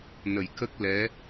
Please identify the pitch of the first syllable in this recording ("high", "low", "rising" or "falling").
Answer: low